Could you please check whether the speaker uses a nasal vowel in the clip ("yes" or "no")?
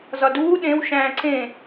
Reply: yes